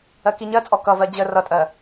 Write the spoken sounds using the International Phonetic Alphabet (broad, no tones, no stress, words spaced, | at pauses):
ɜkiɲɜt͡sʼɔ kʌvɜ d͡ʑə rʌtʼɜ